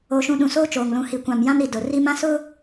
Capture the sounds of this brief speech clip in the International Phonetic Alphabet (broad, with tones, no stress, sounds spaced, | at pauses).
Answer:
o˨ ʃ ũ˨ ɗ ũ˨ s oː˦ t͡ʃ oː˨ ŋ l ũ˨ h i˨ kʷ ã˨ m j ã˦ m ɾ i˨ d ʊ˨ r i˦ m ã˦ s ʊ˦